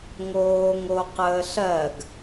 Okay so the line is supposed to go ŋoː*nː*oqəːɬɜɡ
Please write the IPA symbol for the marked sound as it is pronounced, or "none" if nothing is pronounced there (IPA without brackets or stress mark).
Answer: ŋ